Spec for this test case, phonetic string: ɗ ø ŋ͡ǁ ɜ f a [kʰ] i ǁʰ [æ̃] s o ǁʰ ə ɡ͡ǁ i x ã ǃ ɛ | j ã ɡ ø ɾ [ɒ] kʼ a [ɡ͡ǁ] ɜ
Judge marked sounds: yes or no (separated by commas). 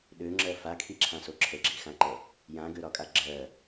yes, no, yes, yes